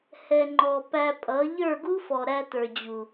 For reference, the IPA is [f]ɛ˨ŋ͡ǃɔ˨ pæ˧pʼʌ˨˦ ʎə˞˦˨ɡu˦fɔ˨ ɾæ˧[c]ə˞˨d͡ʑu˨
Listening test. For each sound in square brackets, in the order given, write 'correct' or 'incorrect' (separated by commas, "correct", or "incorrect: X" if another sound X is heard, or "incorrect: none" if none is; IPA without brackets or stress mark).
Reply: incorrect: h, incorrect: t